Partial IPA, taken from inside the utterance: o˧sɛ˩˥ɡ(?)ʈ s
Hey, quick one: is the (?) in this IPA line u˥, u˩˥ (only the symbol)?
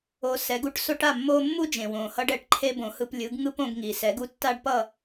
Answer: u˥